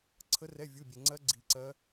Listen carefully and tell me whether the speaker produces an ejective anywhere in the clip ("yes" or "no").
no